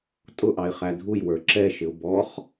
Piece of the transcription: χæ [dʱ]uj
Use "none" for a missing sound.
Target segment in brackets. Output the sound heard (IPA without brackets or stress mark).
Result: dʱ